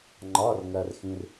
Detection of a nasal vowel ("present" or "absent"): present